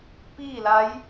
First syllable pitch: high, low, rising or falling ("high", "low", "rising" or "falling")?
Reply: falling